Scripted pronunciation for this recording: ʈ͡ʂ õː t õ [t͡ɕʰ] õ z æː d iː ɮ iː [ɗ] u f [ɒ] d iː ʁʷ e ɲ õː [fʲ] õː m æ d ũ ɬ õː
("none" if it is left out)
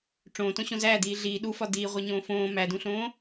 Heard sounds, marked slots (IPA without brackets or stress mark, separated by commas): ɕ, ɗ, ɒ, f